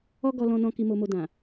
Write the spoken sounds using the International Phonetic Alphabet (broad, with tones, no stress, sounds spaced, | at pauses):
ɔ˦ ɡ ɔ˧ l ɔ̃˧ n ɔ̃˧ k i˨ m o˨ m o˨ d ã˨